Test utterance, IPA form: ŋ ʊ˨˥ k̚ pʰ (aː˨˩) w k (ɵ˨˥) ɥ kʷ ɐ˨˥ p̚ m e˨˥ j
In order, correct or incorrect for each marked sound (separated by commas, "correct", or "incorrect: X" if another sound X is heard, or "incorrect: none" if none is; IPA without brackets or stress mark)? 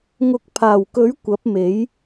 correct, correct